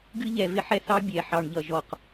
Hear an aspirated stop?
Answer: no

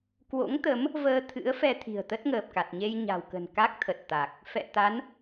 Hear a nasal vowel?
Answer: no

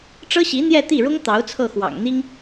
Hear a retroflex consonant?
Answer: yes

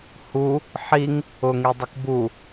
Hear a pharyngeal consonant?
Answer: yes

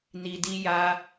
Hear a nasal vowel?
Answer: no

